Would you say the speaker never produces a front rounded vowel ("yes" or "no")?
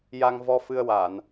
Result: yes